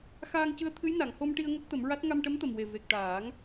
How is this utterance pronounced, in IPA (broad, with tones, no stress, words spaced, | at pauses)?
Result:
xaː˧ŋcɨ˧˥ə̯t̪ʰɨ˧˥j na˨˩˨ŋho˧mʈi˧ə̯ ŋo˦˥k̚t̪ə˨˩˦mɹa˦˥t̚ ŋa˧mʈə˧˥mt̪ə˨˩mwe˨˩ ve˨˩k̚ʈaː˨˩˦ŋ